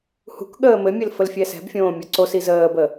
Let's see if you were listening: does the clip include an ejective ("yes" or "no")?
no